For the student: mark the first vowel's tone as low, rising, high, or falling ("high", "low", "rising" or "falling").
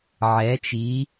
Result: rising